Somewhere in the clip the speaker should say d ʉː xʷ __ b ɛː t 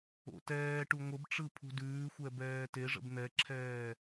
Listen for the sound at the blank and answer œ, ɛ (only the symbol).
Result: ɛ